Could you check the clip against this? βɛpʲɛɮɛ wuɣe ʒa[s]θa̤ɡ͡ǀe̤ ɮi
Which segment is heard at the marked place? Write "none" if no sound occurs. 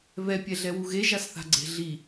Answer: s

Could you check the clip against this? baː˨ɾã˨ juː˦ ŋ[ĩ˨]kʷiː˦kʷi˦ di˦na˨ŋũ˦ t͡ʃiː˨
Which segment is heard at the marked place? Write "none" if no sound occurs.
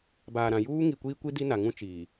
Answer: i˨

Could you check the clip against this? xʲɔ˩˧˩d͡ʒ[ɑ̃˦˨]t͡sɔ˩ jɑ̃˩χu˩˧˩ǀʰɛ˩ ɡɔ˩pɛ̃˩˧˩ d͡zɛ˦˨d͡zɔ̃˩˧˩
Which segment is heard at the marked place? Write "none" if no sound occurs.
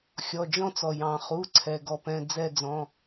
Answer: ɔ̃˦˨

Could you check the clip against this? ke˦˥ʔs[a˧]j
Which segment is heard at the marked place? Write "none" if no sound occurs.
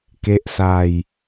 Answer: a˧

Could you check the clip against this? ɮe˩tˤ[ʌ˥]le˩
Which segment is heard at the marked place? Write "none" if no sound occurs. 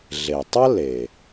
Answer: ʌ˥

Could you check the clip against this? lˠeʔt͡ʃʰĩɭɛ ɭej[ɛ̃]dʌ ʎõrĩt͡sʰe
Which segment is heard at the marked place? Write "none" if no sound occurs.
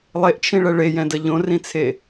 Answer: ɛ̃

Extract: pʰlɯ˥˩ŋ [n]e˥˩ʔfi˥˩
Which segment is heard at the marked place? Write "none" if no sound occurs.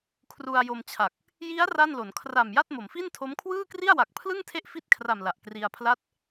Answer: tʰ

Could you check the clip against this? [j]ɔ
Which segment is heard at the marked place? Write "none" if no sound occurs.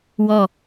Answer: w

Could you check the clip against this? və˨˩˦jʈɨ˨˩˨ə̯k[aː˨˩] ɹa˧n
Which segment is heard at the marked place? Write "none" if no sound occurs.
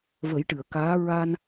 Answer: aː˧˥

